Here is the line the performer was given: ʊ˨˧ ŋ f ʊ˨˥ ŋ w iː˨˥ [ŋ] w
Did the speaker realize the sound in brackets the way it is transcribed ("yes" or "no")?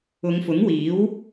no